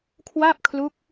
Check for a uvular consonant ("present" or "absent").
absent